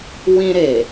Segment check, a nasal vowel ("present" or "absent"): present